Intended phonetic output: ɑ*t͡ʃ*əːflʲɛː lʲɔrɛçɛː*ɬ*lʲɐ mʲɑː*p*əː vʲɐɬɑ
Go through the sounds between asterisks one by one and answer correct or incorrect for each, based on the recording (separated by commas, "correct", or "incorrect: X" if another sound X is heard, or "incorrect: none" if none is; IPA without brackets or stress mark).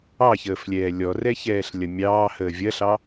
incorrect: ç, correct, incorrect: h